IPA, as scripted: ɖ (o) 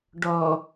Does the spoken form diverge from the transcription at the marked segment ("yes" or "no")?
yes